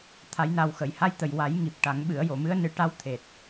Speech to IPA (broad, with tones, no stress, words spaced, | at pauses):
t̪ʰa˨˩˦jna˨˩wxə˨˩˨j ha˧jt̪ə˨˩jwa˨˩˦j ŋi˨˩p̚ʈa˨˩˦ŋɓɨ˨˩˦ə̯ jo˨˩˨mɨ˧˥ə̯ nɨ˨˩˦ʈa˧˥w t̪ʰe˨˩t̚